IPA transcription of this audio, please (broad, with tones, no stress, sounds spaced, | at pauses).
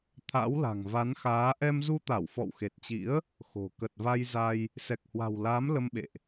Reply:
t̪ʰ a̰˧˥ w l a̤˨˩ ŋ v a˨˦ n x aː˨˦ ʔ ɛ˧ m z u˧ t̪ a˧˩ w f ɔ̰˧˨ w x e˨˩ t̚ t͡ɕ ḭ˧˥ ə̯ | x o̤˨˩ k ə˨˩ t̚ v a˧ j z a˧ j | s ɛ˨˩ k̚ h w a̤˨˩ w l aː˨˦ m l ə˧ m ɓ ḛ˧˨ ʔ